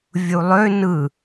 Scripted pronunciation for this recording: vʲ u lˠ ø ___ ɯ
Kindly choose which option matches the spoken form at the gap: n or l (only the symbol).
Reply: n